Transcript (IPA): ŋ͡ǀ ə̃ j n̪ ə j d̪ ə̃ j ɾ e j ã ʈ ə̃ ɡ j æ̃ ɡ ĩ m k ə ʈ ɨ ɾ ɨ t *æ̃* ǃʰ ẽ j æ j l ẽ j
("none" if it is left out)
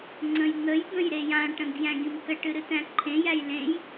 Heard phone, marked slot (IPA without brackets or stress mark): æ̃